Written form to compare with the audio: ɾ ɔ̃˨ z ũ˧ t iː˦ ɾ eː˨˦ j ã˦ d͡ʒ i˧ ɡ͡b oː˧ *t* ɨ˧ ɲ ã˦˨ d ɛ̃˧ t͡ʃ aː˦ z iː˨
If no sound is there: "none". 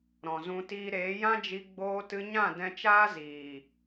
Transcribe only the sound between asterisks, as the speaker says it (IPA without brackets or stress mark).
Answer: t